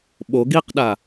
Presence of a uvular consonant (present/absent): present